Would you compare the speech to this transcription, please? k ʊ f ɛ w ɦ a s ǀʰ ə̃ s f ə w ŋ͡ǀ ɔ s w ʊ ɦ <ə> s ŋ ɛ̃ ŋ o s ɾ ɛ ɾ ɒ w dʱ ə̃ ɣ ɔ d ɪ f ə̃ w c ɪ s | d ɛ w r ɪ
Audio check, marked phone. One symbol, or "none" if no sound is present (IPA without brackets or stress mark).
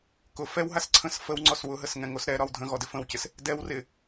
ə